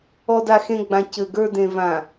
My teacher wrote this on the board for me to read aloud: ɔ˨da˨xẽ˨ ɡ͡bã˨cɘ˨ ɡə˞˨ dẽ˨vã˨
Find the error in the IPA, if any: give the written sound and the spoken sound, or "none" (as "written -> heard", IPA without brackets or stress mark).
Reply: none